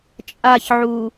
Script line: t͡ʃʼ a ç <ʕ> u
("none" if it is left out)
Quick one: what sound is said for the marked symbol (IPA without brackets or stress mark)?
ʕ